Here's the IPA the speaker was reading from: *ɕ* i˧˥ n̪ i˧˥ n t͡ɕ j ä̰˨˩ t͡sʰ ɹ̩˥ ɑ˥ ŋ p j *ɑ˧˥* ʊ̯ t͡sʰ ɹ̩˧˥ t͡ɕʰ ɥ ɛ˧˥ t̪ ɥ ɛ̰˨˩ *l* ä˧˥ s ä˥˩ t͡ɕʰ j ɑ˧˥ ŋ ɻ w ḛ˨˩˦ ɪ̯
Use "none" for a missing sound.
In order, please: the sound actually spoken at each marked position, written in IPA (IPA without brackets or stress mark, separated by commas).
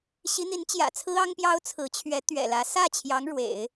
ɕ, ɑ˥, l